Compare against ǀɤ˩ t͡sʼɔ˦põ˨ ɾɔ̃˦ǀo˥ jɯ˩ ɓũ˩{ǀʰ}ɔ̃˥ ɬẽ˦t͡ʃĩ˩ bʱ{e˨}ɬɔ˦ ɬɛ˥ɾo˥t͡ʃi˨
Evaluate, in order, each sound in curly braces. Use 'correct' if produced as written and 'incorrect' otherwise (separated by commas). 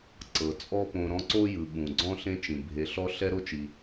incorrect, correct